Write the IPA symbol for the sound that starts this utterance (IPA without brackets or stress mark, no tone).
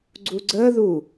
ɡ͡ǀ